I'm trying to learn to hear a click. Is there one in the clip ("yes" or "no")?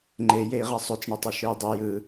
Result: yes